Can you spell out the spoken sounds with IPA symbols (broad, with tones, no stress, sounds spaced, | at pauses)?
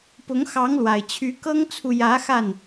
p ʊ˨˦ ŋ x ɑ˨˦ ŋ l w a˨˩ ɪ̯ t͡ɕʰ y˨˦ k ɤ˦ ŋ t͡sʰ u˨ j ä˨˦ x a˥˨ n